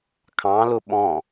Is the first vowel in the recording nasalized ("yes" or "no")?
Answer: yes